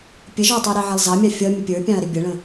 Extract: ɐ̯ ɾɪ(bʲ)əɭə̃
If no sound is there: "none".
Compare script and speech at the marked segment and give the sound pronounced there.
bʲ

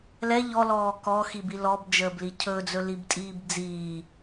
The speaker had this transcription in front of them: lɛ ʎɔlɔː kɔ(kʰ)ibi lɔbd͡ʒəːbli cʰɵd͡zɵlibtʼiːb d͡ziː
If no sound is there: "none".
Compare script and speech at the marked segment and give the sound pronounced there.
x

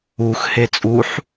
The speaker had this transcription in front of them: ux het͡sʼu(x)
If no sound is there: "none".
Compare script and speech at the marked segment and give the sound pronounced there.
ħ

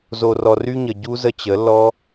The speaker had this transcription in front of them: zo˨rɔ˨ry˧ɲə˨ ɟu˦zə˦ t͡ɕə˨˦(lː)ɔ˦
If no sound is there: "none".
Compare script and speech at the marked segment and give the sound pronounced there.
lː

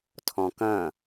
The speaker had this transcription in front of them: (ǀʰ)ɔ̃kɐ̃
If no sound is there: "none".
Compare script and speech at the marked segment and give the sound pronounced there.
tʰ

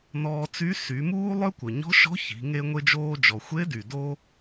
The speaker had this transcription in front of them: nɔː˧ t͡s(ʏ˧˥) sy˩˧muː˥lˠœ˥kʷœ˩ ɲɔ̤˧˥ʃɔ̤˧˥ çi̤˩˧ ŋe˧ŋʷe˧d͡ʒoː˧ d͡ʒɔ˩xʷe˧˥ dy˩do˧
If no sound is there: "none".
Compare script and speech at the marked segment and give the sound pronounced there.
y˧˥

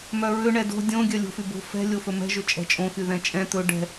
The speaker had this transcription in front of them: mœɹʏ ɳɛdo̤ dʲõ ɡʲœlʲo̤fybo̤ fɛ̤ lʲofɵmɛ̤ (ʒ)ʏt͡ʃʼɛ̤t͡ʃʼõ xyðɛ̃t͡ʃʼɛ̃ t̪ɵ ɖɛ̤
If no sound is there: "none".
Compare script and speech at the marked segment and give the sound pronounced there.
ʒ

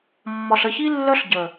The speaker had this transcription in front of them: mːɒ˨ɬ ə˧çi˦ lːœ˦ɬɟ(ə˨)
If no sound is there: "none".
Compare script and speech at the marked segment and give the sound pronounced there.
ə˨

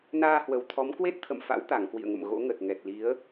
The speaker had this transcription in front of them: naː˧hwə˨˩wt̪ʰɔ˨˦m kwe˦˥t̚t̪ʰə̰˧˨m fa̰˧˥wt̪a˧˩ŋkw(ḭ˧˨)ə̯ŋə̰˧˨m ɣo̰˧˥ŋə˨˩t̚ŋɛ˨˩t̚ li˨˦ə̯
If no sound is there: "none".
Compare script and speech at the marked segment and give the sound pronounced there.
ḭ˧˨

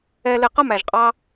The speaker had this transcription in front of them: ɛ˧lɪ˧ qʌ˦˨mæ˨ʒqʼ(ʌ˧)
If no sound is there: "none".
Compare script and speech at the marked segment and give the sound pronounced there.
ɑ˧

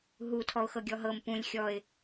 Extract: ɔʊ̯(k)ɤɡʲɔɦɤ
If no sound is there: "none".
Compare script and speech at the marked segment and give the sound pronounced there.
x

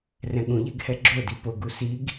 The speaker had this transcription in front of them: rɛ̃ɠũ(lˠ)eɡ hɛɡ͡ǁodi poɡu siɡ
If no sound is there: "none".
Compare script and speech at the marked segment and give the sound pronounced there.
ʎ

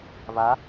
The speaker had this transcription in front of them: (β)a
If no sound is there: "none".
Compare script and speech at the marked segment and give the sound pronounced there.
β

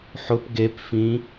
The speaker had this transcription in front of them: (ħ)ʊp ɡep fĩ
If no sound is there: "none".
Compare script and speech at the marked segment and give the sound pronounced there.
ħ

